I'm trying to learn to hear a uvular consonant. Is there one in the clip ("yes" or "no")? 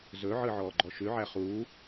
yes